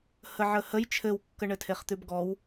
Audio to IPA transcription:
h ə ʕ ə h ə j t͡ʃʰ ɘ w kː ə ɳ ɘ tʰ e χ t̪ ʉ b ɡ ɔ w

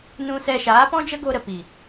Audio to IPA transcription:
n ũ˧ s ɛ˧ ʃ aː˨˦ p ɔ̃˦ d͡ʒ ə˦ ɡ o˧ ɾ ə˨ p i˨

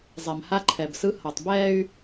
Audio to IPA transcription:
zˤ ɛ˨ m h a˦ ǃʰ ɛ˨ b s ɯ˦ h ʌ˨ tˤ b ɛː˦ y̯

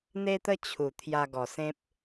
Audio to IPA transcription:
n̪ e˦ t̪ ə˦ t͡ɕʰ u˨˩ t̪ʰ j a˧ ɡ ɔ˨˩ s ẽ˦ p̚

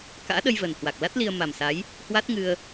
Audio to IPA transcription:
k a̰ː˧˥ ɗ ə˧ j v əː˨˩ n h w a˨˩ k̚ l a˦˥ t̚ l i˧ ə̯ m a˨˩ m s a˨˦ j | h w a˦˥ t̚ ŋ ɨ˧ ə̯

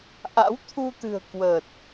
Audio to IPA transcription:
ʔ a̰˧˥ w t̪ʰ u˧ t̪ ɨ̤˨˩ ə̯ k w ə˨˩ t̚

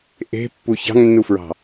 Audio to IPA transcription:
ʔ e̤ pː u ç ɑ̤ ŋ nː u f ɹ ɑ̤

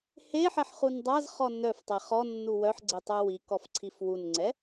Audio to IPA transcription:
h e ħ ɛ ħ χ u n dˤ a z χ ɔ n œ f tˤ ɛ χ ɔ nː u w œ ħ ɡ͡ǀ e tˤ œ w i k ɔ f ǀʰ i f w u n ŋ͡ǀ ɛ

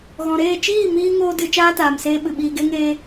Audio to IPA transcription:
ɣ ɔ̃˨ ɾ eː˦˨ t͡ʃ iː˦˨ m iː˧ ŋ oː˦ d ɨ˧ t͡ʃ aː˦ t aː˨ m s eː˧ ɓ ɨ˨ ɓ iː˧ ɡ e˦ ŋ eː˦

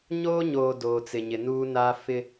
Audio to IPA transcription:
ɲ oː˦ ɲ oː˨ d oː˨ t͡s ɪ˨ ɲ ɪ˨ n uː˦ n aː˦ f ɪ˦

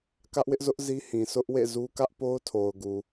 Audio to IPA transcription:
k ä˦ ʔ w ɪ˦ ʔ z ʊ˦ ʔ z i˦ h ĩ˨ sʰ ʊ˦ ʔ w ḛ˦˨ z u˦ k ä˦ ʔ p o˦ ʊ̯ tʰ o˨ ʊ̯ ɡ u˨

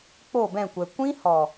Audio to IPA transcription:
k͡p o˦˨ b ɛ̃˦˨ kʷ ɛ˨ kʷ ĩ˦ h ɔ˨

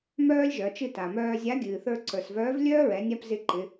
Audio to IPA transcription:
m œː˥ lʲ ʒ œ˩˧ t͡ʃ ɨ˧ t a˩ m œː˧ zʲ a˧˥ ɡʲ ɨː˩ θ ə˞˧ ǀ ə˞˩ s v œː˧˥ v lʲ œː˥ ɹ ɛ˩˧ nʲ a˧ p z ɪ˧ ǃ ɪ˩˧

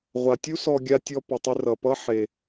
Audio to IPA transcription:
ʁʷ a˨ tʲ u˦ s ɔ˧ ɡʲ a˧ tʲ ɔ˧ p ʌ˨ tˤ ʏ˧ r ʌ˨ p ʌ˦ ħ e˧

